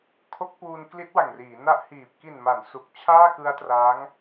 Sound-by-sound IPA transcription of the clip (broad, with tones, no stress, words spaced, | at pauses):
kʰo˦˥k̚puː˧n kli˦˥t̚wa˨˩ŋriː˩˦ na˦˥ʔ hiː˨˩p̚ ki˨˩nma˩˦n su˨˩k̚ t͡ɕʰaː˥˩kɯ˦˥a̯tra˦˥ŋ